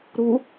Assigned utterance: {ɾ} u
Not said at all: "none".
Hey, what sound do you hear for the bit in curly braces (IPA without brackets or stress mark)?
ɾ